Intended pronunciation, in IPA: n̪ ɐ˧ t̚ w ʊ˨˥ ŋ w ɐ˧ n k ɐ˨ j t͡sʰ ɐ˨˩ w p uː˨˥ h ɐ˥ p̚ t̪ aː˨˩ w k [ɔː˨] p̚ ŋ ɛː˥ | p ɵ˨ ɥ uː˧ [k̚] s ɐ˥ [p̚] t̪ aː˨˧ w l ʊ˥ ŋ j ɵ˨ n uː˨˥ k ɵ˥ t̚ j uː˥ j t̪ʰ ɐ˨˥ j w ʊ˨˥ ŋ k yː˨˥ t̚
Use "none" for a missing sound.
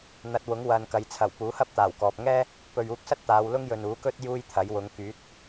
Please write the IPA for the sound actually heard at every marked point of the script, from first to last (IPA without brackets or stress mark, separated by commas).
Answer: ɔː˨, k̚, t̚